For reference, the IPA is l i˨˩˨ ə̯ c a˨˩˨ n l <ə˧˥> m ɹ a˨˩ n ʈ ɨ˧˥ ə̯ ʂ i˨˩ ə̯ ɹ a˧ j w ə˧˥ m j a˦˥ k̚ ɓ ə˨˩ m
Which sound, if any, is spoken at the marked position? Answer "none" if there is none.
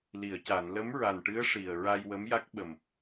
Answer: ə˧˥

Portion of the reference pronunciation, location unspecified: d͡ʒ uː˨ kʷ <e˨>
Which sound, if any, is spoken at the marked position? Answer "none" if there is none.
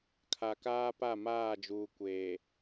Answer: eː˨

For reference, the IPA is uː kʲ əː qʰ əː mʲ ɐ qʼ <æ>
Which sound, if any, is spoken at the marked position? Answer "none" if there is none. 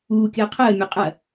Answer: ɐ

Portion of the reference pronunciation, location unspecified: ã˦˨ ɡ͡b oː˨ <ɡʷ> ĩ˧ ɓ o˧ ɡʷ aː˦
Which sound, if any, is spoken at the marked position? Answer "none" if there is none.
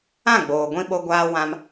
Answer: ɡʷ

